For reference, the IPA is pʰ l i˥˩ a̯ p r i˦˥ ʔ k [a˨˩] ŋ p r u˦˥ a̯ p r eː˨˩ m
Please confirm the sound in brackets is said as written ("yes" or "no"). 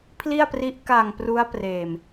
yes